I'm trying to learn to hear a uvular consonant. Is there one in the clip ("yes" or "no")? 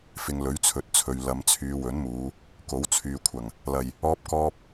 no